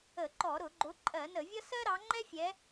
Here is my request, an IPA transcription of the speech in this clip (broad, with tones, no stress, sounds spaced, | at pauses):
ə˧˩˧ ǃ ɔ˧˩˧ ɾ ʊ˧˩˧ ɡ͡ǃ ʊ˨˦ ǃʼ ɜ˧˩˧ n ə˧˩˧ vʲ ʌ˥ s ɜ˥ ɾ ɑ˨˦ ŋ͡ǃ ɛ˥ fʲ ɛ˨˦